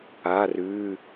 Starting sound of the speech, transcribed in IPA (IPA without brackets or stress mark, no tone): a